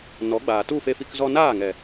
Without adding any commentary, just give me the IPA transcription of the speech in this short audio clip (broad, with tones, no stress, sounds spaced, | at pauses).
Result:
n ɔ˨˦ ɡ͡b aː˨ t u˦˨ f e˧ f i˧ k z ɔ˧ n aː˦˨ ŋ ɛ˨